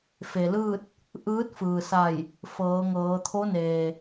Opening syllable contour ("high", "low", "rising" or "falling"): low